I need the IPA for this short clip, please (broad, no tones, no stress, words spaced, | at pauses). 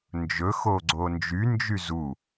nd͡ʒɵ xoɡ͡ǀond͡ʒy nd͡ʒyzu